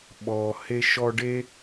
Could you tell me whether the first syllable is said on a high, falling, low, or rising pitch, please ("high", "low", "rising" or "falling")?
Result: low